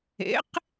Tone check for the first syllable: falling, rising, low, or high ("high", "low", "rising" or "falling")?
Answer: rising